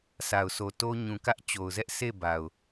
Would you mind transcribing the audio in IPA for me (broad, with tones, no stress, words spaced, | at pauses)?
sʰa˨ʊ̯so˨ to˦ ɲũ˨ kä˦ʔt͡ɕo˨ʊ̯zɛ˦ʔ se˦˨ba˨ʊ̯